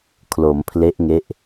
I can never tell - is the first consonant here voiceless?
yes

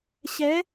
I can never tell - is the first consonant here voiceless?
yes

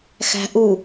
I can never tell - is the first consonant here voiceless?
yes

